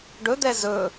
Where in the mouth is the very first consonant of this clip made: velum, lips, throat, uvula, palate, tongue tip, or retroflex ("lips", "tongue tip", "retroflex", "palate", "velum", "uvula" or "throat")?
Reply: retroflex